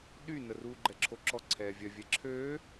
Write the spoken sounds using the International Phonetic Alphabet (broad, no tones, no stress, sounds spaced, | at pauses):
ɗ y n ə r uː ɡ͡ǃ ɛ ǁʰ o ǁ ɔ ǀʰ ɛː vʲ œ vʲ ɛ ǁʰ øː